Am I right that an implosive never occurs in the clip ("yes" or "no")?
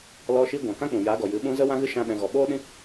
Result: no